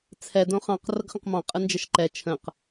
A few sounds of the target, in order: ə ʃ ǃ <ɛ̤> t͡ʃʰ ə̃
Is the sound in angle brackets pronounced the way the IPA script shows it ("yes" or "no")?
no